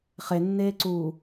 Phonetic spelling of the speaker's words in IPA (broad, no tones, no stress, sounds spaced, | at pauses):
χ e nː eː ǀ uː